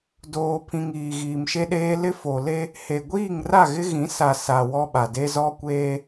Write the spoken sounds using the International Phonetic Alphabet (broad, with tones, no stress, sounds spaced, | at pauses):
d oː˨ pʰ ĩ˨ ŋ iː˨ ɣ iː˨ m ʃ e˦ ɗ eː˦ l ɪ˦ f o˨ l e˦ | h e˨ ɡʷ iː˦˨ ŋ r a˦˨ ɣ ɪ˦ ɣ ĩ˨˦ s a˨ s a˨ w ɔ˦ ɓ a˨ d e˦ z ɔ˦ kʷ eː˦